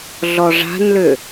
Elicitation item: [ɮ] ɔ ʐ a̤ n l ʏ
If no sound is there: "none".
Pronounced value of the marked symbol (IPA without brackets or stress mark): ɮ